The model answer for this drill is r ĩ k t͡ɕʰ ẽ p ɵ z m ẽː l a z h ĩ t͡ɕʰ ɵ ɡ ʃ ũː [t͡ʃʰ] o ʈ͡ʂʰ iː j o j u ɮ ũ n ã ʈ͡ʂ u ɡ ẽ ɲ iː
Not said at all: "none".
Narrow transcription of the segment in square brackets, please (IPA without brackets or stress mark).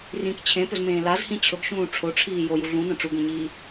ʈ͡ʂʰ